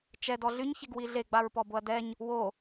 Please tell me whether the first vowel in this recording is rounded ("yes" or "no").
no